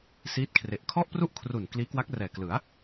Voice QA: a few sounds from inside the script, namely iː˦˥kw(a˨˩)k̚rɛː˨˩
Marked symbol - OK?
no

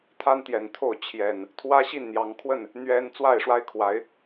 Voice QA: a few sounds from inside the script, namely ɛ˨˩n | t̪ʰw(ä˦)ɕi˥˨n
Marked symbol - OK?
yes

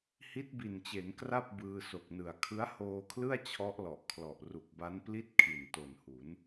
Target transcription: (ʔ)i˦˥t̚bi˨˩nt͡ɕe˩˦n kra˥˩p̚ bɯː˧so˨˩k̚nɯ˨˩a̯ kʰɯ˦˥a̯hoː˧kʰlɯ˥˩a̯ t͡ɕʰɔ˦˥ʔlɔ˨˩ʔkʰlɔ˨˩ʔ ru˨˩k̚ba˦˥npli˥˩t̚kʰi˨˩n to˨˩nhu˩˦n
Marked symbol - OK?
no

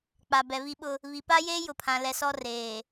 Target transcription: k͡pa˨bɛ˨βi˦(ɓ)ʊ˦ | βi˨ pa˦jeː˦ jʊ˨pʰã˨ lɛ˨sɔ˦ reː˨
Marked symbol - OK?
yes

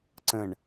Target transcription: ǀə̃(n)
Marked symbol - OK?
no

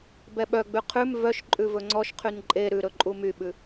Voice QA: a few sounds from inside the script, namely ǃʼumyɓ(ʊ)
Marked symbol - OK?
no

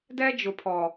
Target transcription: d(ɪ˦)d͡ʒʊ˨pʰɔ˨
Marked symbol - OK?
no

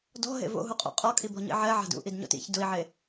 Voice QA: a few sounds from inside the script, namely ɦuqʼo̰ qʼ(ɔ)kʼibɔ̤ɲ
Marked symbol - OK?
yes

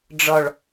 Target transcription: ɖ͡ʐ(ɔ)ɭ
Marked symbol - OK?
yes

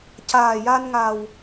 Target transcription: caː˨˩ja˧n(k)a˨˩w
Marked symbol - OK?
no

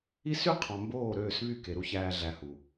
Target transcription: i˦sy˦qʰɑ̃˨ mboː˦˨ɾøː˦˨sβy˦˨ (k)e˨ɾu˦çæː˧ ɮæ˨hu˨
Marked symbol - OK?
yes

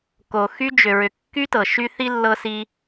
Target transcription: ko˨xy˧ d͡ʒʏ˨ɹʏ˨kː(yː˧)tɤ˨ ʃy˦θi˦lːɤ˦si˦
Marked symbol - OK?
no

